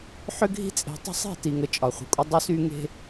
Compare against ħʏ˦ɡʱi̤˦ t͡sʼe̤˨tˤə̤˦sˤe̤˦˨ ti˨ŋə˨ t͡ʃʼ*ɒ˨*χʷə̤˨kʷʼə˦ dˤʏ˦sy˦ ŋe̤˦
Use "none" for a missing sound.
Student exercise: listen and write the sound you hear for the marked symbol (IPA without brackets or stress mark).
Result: ɒ˨